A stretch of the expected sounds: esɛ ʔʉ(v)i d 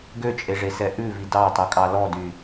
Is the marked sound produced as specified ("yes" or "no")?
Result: yes